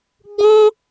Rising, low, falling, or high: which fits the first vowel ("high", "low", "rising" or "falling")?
high